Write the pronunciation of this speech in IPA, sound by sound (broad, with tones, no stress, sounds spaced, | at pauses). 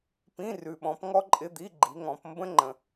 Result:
p ĩ˧˥˧ r ʉ˨ ɓ ɔ̃˨˦ p ŋ ɔ˥ ǃʼ ɪ˧˥˧ d̪ i˧˥˧ ɡ͡ǃ i˨˦ ŋ ɔ̃˨˦ p m b ə̃˥ ŋ͡ǃ ə̃˨